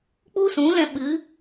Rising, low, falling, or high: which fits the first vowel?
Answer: high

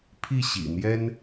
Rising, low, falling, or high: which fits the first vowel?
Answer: falling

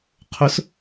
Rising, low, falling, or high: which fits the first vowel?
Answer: rising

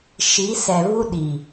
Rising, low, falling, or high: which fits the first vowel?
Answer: rising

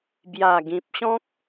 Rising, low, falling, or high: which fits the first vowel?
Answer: low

